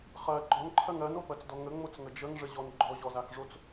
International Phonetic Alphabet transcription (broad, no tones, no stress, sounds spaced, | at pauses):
χ ɜ ɡ͡ǃ ɔ n ǃʰ ɜ ŋ ɜ n o p ɜ t͡s d ɔ ŋ ə ŋ͡m o t͡s ŋ ə d͡ʒ ə ŋ ʐ ə ʑ ɔ n ɡ͡ǃ ɔ ʑ ɔ z a x ʐ o t͡s